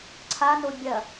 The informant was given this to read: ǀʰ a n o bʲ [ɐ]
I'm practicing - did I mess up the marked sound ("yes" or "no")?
no